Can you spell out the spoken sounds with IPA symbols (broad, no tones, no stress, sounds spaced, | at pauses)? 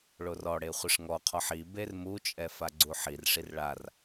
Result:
ɭ o r ɔ ɽ e χʷ ɪ ʂ ŋ ɔ qʰ ɔ ħ i b e r m u t͡ʃʼ ɛ f a ɡ͡ǀ u ħ i r ʂ i r ɭ a r